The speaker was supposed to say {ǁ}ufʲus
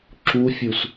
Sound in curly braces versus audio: correct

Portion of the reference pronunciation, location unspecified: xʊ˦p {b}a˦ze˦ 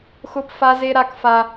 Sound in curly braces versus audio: incorrect: f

